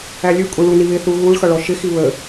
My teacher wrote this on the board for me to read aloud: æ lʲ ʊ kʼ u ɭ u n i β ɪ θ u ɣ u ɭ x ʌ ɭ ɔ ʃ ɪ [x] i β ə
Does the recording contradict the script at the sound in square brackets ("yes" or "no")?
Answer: no